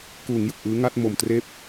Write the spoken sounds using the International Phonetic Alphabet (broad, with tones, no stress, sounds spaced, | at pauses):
k uː˩˦ ŋ j ɯ˨˩ k̚ ʔ ɯː˦˥ ŋ a˥˩ t̚ m o˨˩ m t r eː˥˩ p̚